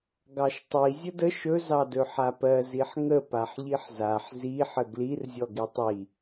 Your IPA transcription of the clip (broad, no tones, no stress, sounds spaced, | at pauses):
ɡ ɑ ʃ tˤ i zʲ ə d ə ʃ ɵ z ɑ d ɵ ħ a p ɜ z i ħ ŋ ə p a ħ ʎ i ħ z a ħ z i ħ ə ɡ l i r zʲ ɔ ɡ i tˤ i